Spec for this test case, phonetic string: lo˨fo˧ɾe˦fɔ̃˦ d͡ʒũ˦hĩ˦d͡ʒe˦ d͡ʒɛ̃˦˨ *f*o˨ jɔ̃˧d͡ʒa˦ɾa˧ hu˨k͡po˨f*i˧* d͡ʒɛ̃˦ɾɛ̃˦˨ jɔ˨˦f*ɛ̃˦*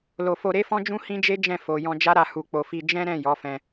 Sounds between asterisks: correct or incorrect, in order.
correct, correct, incorrect

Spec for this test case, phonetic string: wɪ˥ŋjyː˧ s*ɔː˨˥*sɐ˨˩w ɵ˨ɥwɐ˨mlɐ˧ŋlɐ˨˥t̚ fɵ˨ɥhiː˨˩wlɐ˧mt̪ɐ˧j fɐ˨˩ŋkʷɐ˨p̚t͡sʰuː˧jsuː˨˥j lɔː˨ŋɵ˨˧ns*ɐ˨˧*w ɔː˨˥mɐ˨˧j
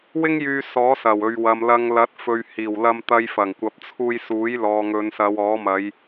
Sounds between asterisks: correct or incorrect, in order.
correct, correct

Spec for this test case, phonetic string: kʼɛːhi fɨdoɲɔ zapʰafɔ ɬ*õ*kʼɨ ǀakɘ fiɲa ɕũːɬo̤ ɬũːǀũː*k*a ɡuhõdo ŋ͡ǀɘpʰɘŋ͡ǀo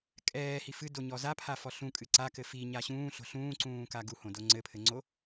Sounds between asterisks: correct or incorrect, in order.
incorrect, correct

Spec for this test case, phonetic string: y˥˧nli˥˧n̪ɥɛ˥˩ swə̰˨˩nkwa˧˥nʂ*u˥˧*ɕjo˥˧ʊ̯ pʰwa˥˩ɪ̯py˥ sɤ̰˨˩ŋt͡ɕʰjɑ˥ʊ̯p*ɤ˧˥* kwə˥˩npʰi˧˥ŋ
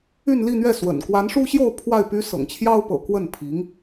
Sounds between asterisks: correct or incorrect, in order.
incorrect, incorrect

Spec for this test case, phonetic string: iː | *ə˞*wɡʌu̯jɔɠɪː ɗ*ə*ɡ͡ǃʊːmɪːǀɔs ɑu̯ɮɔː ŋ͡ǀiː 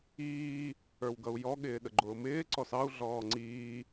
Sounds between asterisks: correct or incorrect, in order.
correct, correct

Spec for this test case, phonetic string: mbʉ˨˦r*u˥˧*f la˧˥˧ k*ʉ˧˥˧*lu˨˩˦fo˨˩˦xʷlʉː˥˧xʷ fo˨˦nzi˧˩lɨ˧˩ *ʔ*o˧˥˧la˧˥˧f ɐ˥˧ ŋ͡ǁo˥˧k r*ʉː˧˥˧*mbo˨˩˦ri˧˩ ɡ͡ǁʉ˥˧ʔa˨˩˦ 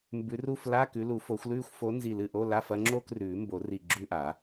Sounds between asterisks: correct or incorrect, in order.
correct, incorrect, correct, incorrect

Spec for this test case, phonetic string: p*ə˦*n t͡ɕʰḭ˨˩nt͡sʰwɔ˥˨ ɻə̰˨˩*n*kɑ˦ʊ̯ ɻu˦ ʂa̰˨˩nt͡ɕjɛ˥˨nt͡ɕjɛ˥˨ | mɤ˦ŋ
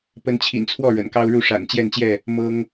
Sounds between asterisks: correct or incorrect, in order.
correct, correct

